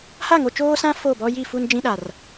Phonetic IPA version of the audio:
h a˦˨ ŋ o˨ t͡ʃ oː˦ s ã˦ f o˦˨ b ɔ˦ j i˦˨ f u˦ n d͡ʒ ĩ˦ ɗ a˨ r

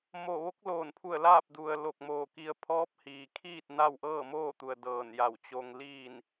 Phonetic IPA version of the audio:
m o˧˩ ʋ o˧˥ k̚ l oː˧˩ n pʰ u˧˩ ə̯ l aː˥˨ p̚ d u˩ ə̯ l o˧˩ k̚ m oː˧˩ k i˧ ə̯ pʰ ɔː˧˥ p̚ h iː˩ kʰ iː˥˨ t̚ n a˥˨ w ʔ ɤː˥˨ m oː˥˨ t̪ u˩ ə̯ d ɤː˧˩ n j a˧˩ w t͡ɕ o˧ ŋ l iː˥˨ n

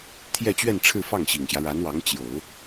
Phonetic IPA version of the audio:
t̪ʰ j ɛ˥˧ t͡ɕ ɥ ɛ˥˧ n ʈ͡ʂʰ ɻ̩˥˧ f ɑ˥˩ ŋ ɕ i˨˩ ŋ ɕ j ä˦ ɻ a˧˥ n w ɑ˧˥ ŋ t͡ɕ j o˨˩˦ ʊ̯

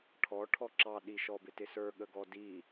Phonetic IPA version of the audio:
ʈʰ ɔ ʈʰ ɔ ǁ ɑ ɗ i ʃ ɔ b ɪ t ɪ s ə˞ ɠ ə ɡ ɔ d i

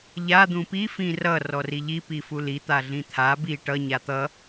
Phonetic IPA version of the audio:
ʎ a d̪ ũ p i f ĩ r ʌ r ɔ r i ʎ i p i f u l i t̪ a ɮ ĩ t̪ʰ a b i ʈ ʌ ɲ a t̪ ʌ

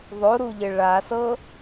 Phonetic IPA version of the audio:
ðˤ o ɾ u ʎ ɘ ɭ a s ɤ

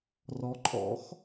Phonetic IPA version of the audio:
r ɔ˩˥ ǃʼ ɔ̰˩˥ x

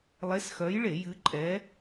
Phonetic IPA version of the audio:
lˠ e˨˥ s x œ˨˥ j ɭ e˧˩˧ j ɨ˨˥ ǃʼ ɛ˨˥

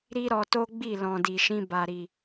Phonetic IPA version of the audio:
ɾ i˦ ɾ ɔ˧ t o˦ ɡ͡b i˦˨ l ɔ̃˨ d i˨ ʃ ĩ˧ b a˨ ɾ i˨

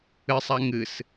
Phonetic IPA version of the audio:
ɨ sˤ a ŋ ɨ s

